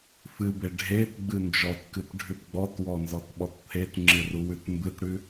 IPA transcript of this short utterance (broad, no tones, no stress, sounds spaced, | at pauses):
f ɨ b e ɖʱ e t ɡ͡b ɨ n d͡ʒ ɔ t k ɨ t ɖʱ ʉ t ɡ͡b ɔ t w ɔ n z ɔ t ɓ ɔ t t̪ʰ e t ŋ͡ǁ ɨ r u w ʉ t m b ɨ t ɽ ʉ